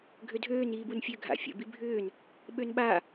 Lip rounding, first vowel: rounded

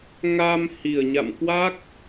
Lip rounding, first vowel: unrounded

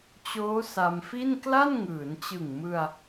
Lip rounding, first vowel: rounded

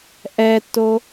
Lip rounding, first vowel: unrounded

